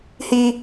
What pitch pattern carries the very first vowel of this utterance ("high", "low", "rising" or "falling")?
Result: high